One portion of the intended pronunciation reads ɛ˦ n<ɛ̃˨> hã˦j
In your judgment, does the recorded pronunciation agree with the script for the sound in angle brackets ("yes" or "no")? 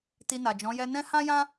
no